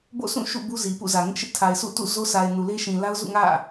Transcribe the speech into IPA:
b o̰˦˨ sʰ ũ˦˨ ʃ ṵ˦˨ b u˦ z i˨ p ṵ˦˨ z ä˨ ŋ ɪ˦ ʔ ʃ ɪ˦ ʔ tʰ a˨ ɪ̯ sʰ ṵ˦˨ t ṵ˦˨ z o˦ s a˨ ɪ̯ n u˨ l e˦ ʃ ĩ˨ l a˦ ʊ̯ z ṵ˦˨ ŋ ä̰˦˨

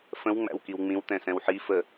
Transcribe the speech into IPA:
f ə̃ w ŋ͡m æ̰ w k i w ŋ͡m ĩ w t̪ ɛ̃ s ɛ̃ w ħ i f ə

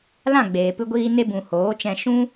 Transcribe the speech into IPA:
l ã˦˨ ɡ͡b eː˨ p ɨ˧ ɡʷ iː˧ n e˧ b ũ˨ h oː˨˦ t͡ʃ ɛ̃˧ ʃ ũ˦

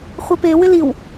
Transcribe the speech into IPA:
χʷ ɛ p e w ɪ l i w

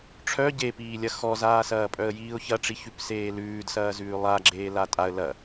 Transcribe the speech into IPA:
ʈ͡ʂʰ œ ɟ e p iː lʲ ɐ x ɔ z aː s ɐː pʼ œ ə̯ j iː ʊ̯ ç ɐ ʈ͡ʂ i ç ʉ p s eː l ʉː d s ɐː z ʉː lˠ a ɡ͡ǁ eː l a tʼ a ə̯ l ɐ

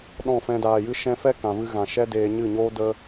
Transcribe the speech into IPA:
ɗ ɔ̃˦˨ f ɛ̃˧ d aː˨ j ɨ˦ ʃ ɛ̃˦ f ɛ˦ k ã˨ v ɨ˧ ɣ ã˨ ʃ ɛ˦ d eː˧ ɲ ɨ˦˨ ɲ oː˦ d ə˦

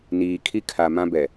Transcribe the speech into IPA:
n iː˨ kʰ i˦ kʰ a˨ m ã˦ b ɛ˨

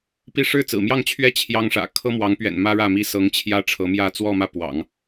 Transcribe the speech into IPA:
p i˥˧ ʂ ɻ̩˥˩ t͡s ɹ̩˨˩ m j ɑ˥˧ ŋ t͡ɕʰ ɥ ɛ˥˩ t͡ɕʰ j ɑ˥ ŋ ʂ ä̰˨˩ kʰ ɤ˥ m w ɑ˧˥ ŋ p ɥ ɛ̰˨˩ n m ä˥ ɻ ä˥˩ m i˥ s ɤ˧˥ ŋ t͡ɕʰ j ä˥ ʈ͡ʂʰ ɤ˧˥ m j ä˥˧ t͡s w ɔ˥˧ m ä˥˩ p w ɑ̰˨˩˦ ŋ

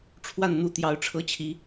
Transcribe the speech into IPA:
ʈ͡ʂʰ w a˥˩ n n̪ u˧˥ t̪ j ɑ˧˥ ʊ̯ ʈ͡ʂʰ ɤ˥ t͡ɕʰ i˧˥

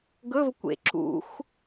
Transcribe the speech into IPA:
ɡ ɵ v kʷ ḛ ǁ ṵ xʷ

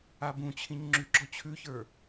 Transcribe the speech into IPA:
a b ũ t͡ɕʰ ĩ ɲ ŋ͡ǁ ʉ ɡ͡ǁ ɔ t͡ɕʰ ʉ ç ə˞

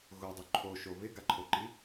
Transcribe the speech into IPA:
ɣ ʊ dˤ ʊ ǃʰ o ʃ o β ɪ ɡ a ǃʰ o ǃ i

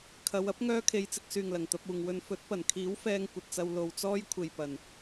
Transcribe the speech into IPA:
kʰ ɐ˨˧ w ɐ˥ p̚ ŋ œː˥ kʰ e˧ j t͡s ɪ˧ k̚ s yː˨ ŋ l ɐ˨˩ ŋ t̪ ɐ˧ p̚ uː˨ ŋ w ɵ˧ n f ɵ˨˥ t̚ p ɐ˨˩ n kʰ iː˨˥ w f ɛː˧ ŋ kʷ ɐ˨ t̚ t͡s ɐ˧ w l o˨ w t͡s ɔː˥ j kʷʰ e˨ j p ɐ˨˩ n

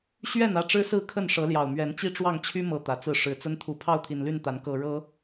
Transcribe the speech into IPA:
ɕ ɥ ɛ˥˨ n ä˥˨ ʈ͡ʂ ɻ̩˦ s ɹ̩˥˨ kʰ ə˥˨ n ʂ ɤ˨˦ l j ɑ˨˩ ʊ̯ m ɥ ɛ˨˦ n t͡ɕ i˥˨ ʈ͡ʂ w ɑ˥˨ ŋ t͡ɕʰ y˦ m ɤ˨˩ t̪ ä˨˦ t͡s ɹ̩˥˨ ʂ ɻ̩˨˩ t͡s ə˦ n t̪ʰ u˨˩ pʰ ɑ˥˨ ʊ̯ t̪ʰ i˨˩ n l y˥˨ n t̪ a˨˦ n k ɤ˨˩ ɻ ɤ˨˦

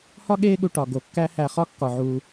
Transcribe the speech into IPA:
h ɒ˥ ɠ eː˦ ɠ u˨ ʈ ɒ˩ ɡ o˨ kː æ˦ h æ˨ χ ɒ˥ kː ɒ˩ ʕ uː˨

